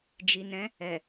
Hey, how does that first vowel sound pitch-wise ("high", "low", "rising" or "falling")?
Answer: low